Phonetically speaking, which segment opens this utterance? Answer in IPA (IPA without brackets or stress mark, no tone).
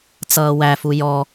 t͡s